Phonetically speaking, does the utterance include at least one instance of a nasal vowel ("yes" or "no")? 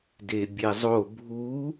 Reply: no